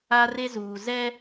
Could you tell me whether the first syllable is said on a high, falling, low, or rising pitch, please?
high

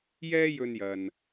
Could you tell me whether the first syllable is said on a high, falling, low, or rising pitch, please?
high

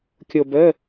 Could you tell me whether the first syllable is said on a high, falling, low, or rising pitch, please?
low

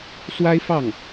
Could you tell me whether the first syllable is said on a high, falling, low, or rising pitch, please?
high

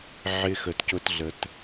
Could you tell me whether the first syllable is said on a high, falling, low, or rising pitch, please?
high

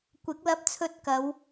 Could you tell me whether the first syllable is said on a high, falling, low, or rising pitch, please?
rising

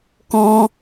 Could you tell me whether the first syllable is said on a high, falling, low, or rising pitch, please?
high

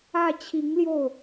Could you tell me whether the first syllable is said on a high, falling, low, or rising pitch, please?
falling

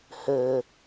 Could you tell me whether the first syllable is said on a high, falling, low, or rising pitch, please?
low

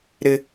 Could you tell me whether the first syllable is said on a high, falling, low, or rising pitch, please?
high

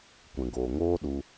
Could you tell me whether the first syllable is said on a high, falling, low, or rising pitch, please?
low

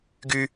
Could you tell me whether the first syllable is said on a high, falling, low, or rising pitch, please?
high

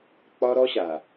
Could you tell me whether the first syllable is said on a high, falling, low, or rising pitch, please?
high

